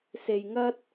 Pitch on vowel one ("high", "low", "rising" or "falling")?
low